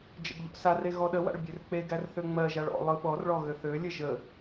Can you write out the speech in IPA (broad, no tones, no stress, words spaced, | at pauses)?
d͡ʒə̰ɡʎɔ̰sare ɣɔɗəwa̰ɭ bʲørk͡peɡær θøŋ͡mɜʒaɭ ɔ̰ lˠɯɓɔrɭɔ ɣøθølʲə ʒə